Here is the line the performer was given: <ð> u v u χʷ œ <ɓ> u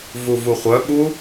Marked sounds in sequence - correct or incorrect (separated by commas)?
incorrect, correct